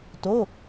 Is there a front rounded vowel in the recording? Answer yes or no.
no